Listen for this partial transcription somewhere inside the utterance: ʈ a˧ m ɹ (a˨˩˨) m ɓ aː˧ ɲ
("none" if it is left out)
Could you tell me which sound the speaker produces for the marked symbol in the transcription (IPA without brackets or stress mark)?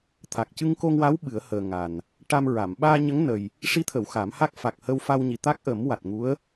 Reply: a˨˩˨